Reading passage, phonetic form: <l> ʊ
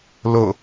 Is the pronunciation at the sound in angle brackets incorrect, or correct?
correct